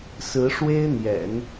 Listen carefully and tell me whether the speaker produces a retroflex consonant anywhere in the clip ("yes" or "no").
yes